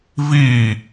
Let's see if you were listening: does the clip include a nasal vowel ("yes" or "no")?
no